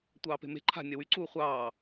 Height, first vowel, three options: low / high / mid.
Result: low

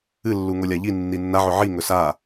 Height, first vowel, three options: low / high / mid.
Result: high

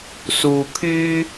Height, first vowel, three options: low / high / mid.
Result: high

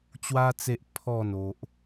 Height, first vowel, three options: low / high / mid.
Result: low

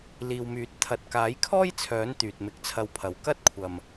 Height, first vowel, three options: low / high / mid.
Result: high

